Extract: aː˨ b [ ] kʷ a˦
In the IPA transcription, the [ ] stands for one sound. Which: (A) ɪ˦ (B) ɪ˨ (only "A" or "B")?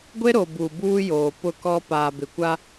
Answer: B